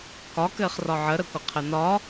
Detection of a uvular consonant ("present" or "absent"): present